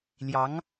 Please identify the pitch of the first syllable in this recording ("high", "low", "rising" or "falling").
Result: rising